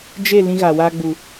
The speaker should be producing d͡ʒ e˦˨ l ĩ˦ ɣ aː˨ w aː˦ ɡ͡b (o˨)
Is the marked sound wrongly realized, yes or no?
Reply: yes